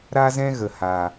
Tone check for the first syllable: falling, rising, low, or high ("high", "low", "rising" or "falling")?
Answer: high